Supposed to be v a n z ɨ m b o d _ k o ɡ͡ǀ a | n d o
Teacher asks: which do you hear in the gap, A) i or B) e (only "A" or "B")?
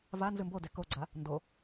B